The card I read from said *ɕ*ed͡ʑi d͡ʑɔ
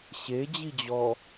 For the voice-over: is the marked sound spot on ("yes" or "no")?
yes